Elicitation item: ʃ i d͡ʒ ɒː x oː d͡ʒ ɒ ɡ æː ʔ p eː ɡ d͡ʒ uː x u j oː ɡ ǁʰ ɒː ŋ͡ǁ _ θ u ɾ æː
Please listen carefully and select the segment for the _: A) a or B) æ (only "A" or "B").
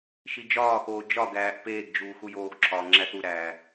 B